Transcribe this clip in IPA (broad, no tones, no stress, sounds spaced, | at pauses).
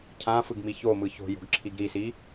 cʰ ã f ɯ ɡ m i ç o m ɯ ç o̤ j o̤ ɡ ǁʰ i ɡ ɾ i s i